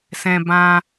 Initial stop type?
plain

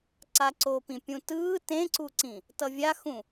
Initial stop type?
click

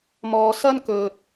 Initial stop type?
plain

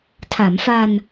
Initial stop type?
aspirated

